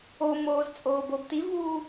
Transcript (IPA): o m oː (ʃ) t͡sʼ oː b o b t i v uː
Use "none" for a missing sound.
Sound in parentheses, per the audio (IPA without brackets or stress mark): z